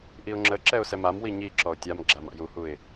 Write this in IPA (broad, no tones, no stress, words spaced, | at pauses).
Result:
ʔiʊ̯ŋ͡ǁəǁɛʊ̯ sɛmamwi ɲi ǁɔʊ̯tʲamɡ͡ǁam a̰juhuɪ̯